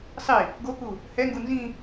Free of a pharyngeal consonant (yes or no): yes